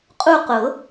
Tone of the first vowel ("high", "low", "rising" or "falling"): falling